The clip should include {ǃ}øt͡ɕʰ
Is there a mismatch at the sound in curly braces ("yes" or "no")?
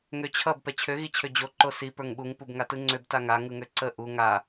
yes